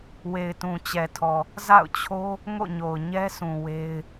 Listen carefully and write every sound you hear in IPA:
w e˨ ɪ̯ t ũ˨ t͡ɕ ɛ˨ tʰ ɔ˨ | z a̰˦˨ ʊ̯ t͡ɕʰ o˦ | ŋ o̰˦˨ ɲ o˨ ʊ̯ ɲ ɛ˦ sʰ ũ˨ w e˦ ɪ̯

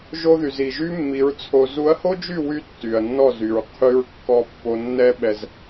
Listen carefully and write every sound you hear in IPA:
ʒ o˦ ð y˨ z i˨ ʒ y˦ mː i˨˦ ɹ t͡sʰ o˧ z u˨˦ ɐ̯ h o˦ d͡ʒ y˦˨ w y˦ tː y˨ ɐ̯ nː ɔ˦˨ z y˨ ɹ qʰ y˧ ɹ kː ɔ˧ pː o˧ nː ɛ˦ ɓ ɛ˧ z

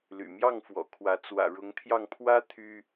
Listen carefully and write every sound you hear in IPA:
l y̰˨˩ m j ɑ˥˨ ŋ f w ɔ̰˨˩ kʰ w ä˨˦ t͡s w ä̰˨˩ ɻ ʊ˨˦ ŋ t̪ʰ j ɑ˧ ŋ pʰ w ä˦ t̪ʰ y˦

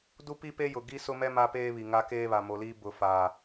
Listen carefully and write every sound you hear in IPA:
d u˦ p i˦ p e˦ j ʊ˨ ɡ i˦ s ʊ˦ m ɛ˦ m a˦ p eː˦ β i˨ ŋ a˦ k eː˦ β a˨ m o˨ l iː˦ b ʊ˦ f a˦

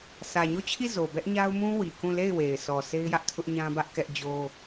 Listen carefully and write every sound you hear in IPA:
s ä˨ ɲ o˦˨ t͡ɕʰ i˦˨ z o˨ b ɛ˦ ʔ ɲ a˦ ʊ̯ m ũ˦ w i˨ k ũ˦˨ l e˦˨ ɪ̯ w e˨ ɪ̯ sʰ ɔ˨ s e˦ ɪ̯ j ä˦ ʔ tʰ ʊ˦ ʔ ɲ ã˦ b ä˦ ʔ k ɛ˦ ʔ d͡ʑ o˦

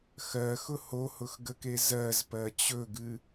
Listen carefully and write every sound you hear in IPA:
x ɜ x ʊ h o h ʊ x ɡ ə k e z ɜ z p ɜ t͡ɕ ɵ ɡ ɨ

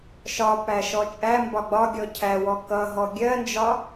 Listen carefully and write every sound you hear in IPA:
ʃ ɒ p æ ʃ ɔ t͡ʃʼ æ m b ɒ ɡ͡b ɒ ɡʲ ɔ cʰ æ w ɔ k ʌ ɦ ɔ ɡʲ ɜ n d͡ʒ ɒ

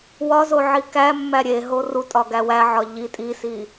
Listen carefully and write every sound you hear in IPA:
w ɒ z o ʕ i k æ mː æ ɾʲ e ɦ o r u tʼ ɒ ɡ æ w æ ʕ ɒ ʎ i tʼ i s i

